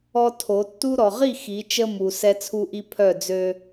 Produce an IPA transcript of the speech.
ɔ˦ tʰ o˨˦ tː u˦ ɾ ɔ˨ ʁ i˦˨ x i˨˦ t͡ʃ ə˦ m u˨ s ɛ˦ t͡sʰ u˦ ʔ i˦ pʰ œ˦˨ d͡z ø˦

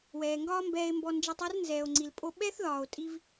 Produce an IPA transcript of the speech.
w ɛː˩ ŋ ɡ ɒː˥ m b ɛː˧ e̯ m b ɔ˧ n d͡ʒ ɛ˧ tˤ œ˥ r n z ɛː˩ o̯ ŋ͡ǀ i˩ l pʼ o˥ ɓ ɛ˥ θ ð ɒː˩ o̯ tʼ i˥ v

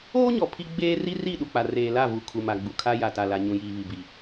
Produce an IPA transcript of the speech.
oː˦ ɲ ɔ˨ pʰ i˦ ɡ͡b eː˦ r i˦ r i˦˨ ɗ u˨ k͡p a˨ r eː˨ l a˦˨ v u˨ kʰ u˨ m a˨ ɡ͡b u˨ kʰ a˦ j a˨ t a˨ l a˨ ɲ ũ˨ j iː˨ β i˨ b i˨

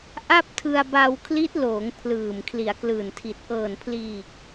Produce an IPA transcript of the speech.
ʔ a˥˩ p̚ tʰ ɯ˧ a̯ b a˧ w kʰ l i˦˥ t̚ l oː˩˦ ŋ pʰ l ɯː˨˩ m kʰ l i˩˦ a̯ k l ɯː˨˩ n tʰ i˨˩ t̚ ʔ ɤː˨˩ n pʰ l iː˨˩ k̚

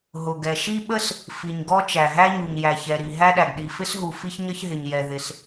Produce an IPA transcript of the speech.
ɦ ʊ˩ ɡ ɛ˩ ʃ i˥ ɓ ə˥ s | f i˩ ɲ ɡ ɔ˥ t͡ʃ æ˩ ɦ æ˥ ɲ u˩ ɲ j æ˩ ç ɛ˩ ɾ i˩ ɦ æ˥ ɗ æ˩ ɡ ɗ i˩ f ɪ˥ s ɦ u˩ f i˥ ç ɲ ʌ˥ ç ɦ ɪ˩ ɲ j ɛ˩ ð ɪ˩ s

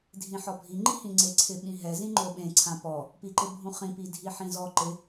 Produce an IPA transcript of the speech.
dʱ ĩ ħ ɔ bʱ i ŋ͡ǃ i h ĩ ŋ͡ǀ e ǀʰ ɪ ɓ ĩ ɦ ɛ z ĩ ŋ͡ǃ o ɓ ẽ ǀʰ ã p ɔ | p i ǃ ɪ bʱ ũ χ ĩ p i dʱ i ħ ĩ z ɔ ǃ ɪ

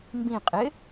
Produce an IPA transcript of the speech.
m b ĩ qʼ ɪ

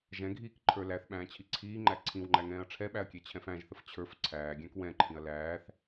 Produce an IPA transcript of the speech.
ʒ ɛ̃ ɡʱ iː k ǃʰ ə˞ l æ θ ɓ æ̃ː t͡ɕʰ i ǀʰ iː ŋ͡ǃ æ ǀʰ ĩ w ŋ͡ǃ æ ŋ ɛ̃ː ɐ̯ ʈ͡ʂʰ ɛ ɓ æ ɐ̯ kʲ ɛ t͡ɕʰ ɛ̃ f æ̃ ʒ θ ə f t͡ɕʰ ə˞ f ǀʰ æː ɡʲ æ̃ k w ɛ̃ ǃʰ ĩ ɐ̯ l æː θ

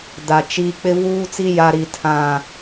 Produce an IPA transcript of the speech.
d a˨ t͡ʃ i˦ k͡p ɪ˦ v uː˦ t͡s i˦ j a˦ ɾ i˦ tʰ ã˦

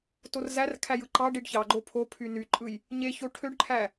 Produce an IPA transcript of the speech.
t o r z æ r kʰ æ j ɯ ǃ ɑ ɖ i ɖ ç ɑ ɡ͡ǃ o pʰ o pʰ y n y ǃʼ ɯ j | ɲ e ç o ʈʰ ø ɖ ǃʰ æ

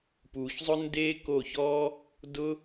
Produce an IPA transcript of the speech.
p uː˨ ç zˤ ʊ˦ n d eː˦ k o˦˨ ç ɔː˦ | d ʊ˦

